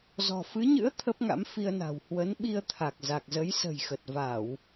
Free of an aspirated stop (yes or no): no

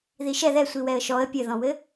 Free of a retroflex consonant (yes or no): yes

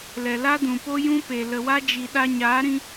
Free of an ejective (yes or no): yes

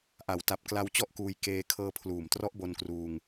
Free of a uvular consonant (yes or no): yes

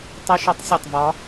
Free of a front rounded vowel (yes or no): yes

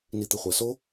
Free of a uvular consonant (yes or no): no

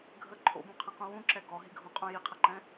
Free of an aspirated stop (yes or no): no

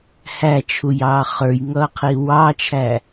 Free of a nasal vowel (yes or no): yes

